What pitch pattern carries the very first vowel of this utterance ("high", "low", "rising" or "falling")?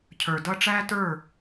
low